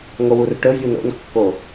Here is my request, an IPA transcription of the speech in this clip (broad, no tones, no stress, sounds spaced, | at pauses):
ŋ o w u r ʈ ɵ vʲ u n o̰ n kː o